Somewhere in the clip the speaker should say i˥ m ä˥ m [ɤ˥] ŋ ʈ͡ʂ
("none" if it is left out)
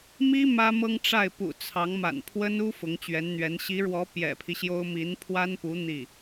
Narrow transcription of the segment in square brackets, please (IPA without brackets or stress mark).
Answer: ɤ˥